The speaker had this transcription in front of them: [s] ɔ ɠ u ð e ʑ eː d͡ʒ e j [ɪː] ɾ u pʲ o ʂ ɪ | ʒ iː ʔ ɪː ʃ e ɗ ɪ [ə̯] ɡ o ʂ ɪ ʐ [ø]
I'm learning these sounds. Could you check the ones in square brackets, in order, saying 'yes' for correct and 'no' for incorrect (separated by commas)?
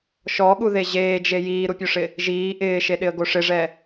no, no, yes, no